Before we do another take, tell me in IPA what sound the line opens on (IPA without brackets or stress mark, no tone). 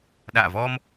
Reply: ɗ